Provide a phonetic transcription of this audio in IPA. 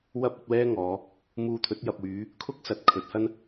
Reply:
w ɐ˥ p̚ ɵ˨˥ t̚ w ɛː˥ ŋ ɔː˨˧ | m uː˧ t̪ʰ ɵ˨˥ t̚ j ɐ˨ p̚ w yː˨˧ | kʰ ʊ˥ k̚ s ɐ˨˥ t̚ kʰ ɵ˨˥ t̚ h ɐ˥ n

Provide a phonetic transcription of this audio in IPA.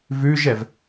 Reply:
v ʉ ʒ ɛ v

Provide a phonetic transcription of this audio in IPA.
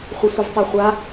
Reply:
χʷ ɪ sʷ ə v tˤ a χʷ a

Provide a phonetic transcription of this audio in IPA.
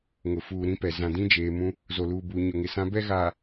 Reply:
ŋ ʊ˨ f uː˨ ɾ ĩ˦ p ɛ˨ z ã˨ d ĩ˦ d͡ʒ eː˨ m ũ˦ | z o˨ l uː˨ b uː˨ ɲ ʊ˨ ŋ ɪ˨ s ã˦ b ɛ˦ ɣ aː˨

